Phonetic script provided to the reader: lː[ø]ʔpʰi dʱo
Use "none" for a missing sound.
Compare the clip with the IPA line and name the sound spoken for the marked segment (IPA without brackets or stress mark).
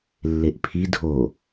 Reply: e